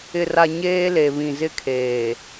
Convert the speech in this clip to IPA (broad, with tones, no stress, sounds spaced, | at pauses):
ɪ˨ r a˨ ɲ eː˦ l e˨ β ĩ˨ z ɪ˦ kʰ eː˨